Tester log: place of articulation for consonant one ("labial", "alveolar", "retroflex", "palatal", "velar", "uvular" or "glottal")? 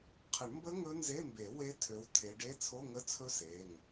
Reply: uvular